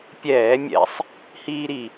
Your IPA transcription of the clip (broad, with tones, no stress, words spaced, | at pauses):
pʲɛː˧˩˧mʲɛ̰˧˩˧sˤ | hiː˥ɾi˨˩